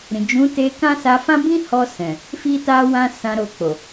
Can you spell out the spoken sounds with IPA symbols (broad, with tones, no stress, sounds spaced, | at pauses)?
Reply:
ɾ ĩ˨ d͡ʒ ũ˨˦ t e˧ k ã˦ s a˧ f ã˦ b ĩ˦ h ɔ˧ s ɛ̃˨ | f i˧ t a˧ w ã˧ s ã˧ ɾ o˧ k͡p o˨